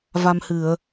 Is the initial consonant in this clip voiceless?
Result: no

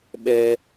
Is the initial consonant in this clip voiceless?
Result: no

